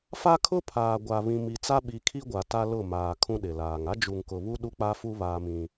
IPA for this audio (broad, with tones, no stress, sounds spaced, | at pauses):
f a˦ kʰ ʊ˦ pʰ aː˨ ɡʷ a˨ β ĩ˨ m i˨ t͡s a˦ ɓ i˨˦ kʰ i˦ ɡʷ a˨ t a˦ l ʊ˦˨ m aː˨ kʰ ũ˦ ɗ ɪ˨ l aː˨ ŋ a˦ d͡ʒ u˨ ŋ k ʊ˨ β u˦ ɗ u˦ k͡p a˦ f u˦ β aː˦ m ĩ˦